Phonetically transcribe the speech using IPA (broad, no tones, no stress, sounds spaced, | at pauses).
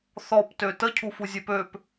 θ ɔ p t ø t ə cʰ u f u zʲ e p ø p